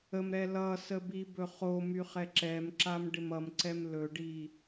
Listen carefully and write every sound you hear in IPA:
ə m ɾ ɛ l ʌ s ə b i b ɵ χ o m y χ ɛ ǁ ɛ m ǁ a m ɖ ɪ m ʌ m ǀ ɛ m l ɵ ɖ i

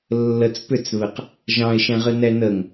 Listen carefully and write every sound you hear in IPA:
lː ə t͡s p ʏ t͡s β ɘ q | ʒ ɑ̃ ɪ̯ ʃ ɛ̃ ʁ ɘ n ɛ n ə ŋ

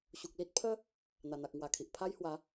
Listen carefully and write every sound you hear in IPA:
ɕ u˨ k̚ l i˦ t̚ pʰ ə˦ | n̪ a˨˩ n̪ a˨ k̚ ŋ w a˨˩ kʰ i˨ ʔ pʰ a˦ j h w a˨˦

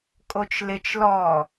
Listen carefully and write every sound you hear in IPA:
kʼ o t͡ʃ l ɪ t͡ʃ l ɔ

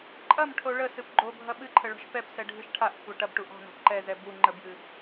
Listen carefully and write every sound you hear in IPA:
ǃʼ ɐ m ʈʰ o ɭ ə s ɨ p ɡ͡ǃ o bʱ ɐ ɓ ɨ ǃʰ ə ɭ ɔ̤ ʃ p ɛ p s ɛ ɖʱ ɨ ʃ ʈʰ a ʔ kʷʰ a ʈ ɐ b ʈ u ʔ ɔ̤ n ɔ̤ b ǃ ɛ z ɛ b u ŋ͡ǃ ə b j ɨ

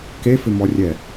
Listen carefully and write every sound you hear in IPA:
k e f ɪ m ɔ rʲ ɛ

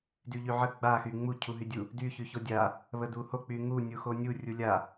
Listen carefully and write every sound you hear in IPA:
d y ʎ y ʕ ə ɡ͡b a x y ŋ͡m u cʰ u ɦ y dʲ u | d y ç y ç o dʲ a | β ə d u h o k͡p y ŋ u nʲ u x o nʲ u rʲ u lʲ a

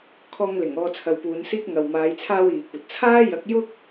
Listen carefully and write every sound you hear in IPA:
kʰ ɔː˧ ŋ l ɪ˨˩ ŋ ɔː˧ t͡sʰ ɐ˨˧ w p uː˨˧ n s iː˥ k̚ ŋ ɐ˨ w m aː˨˧ j t͡sʰ aː˧ w iː˨ kʷ ɐ˨ t̚ t͡sʰ aː˥ j ɐ˨˥ k̚ j ʊ˥ k̚

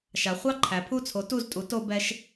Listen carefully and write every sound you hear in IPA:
ʃ a˩˧ χʷ ɑ˥˩ ǃʰ æ˩˧ pʰ u˥˩ t͡sʰ o˨˥ t u˥˩ z tʼ u˨˥ t o˦ b ɛ˦ ʃ

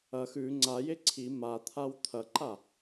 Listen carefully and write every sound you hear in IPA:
ɐ x ʉ ŋ͡ǀ a j e ǀʰ i m a t̪ʰ a w t̪ʰ ɐ ǃ a

